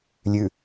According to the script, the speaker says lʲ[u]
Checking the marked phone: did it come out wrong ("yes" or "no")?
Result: yes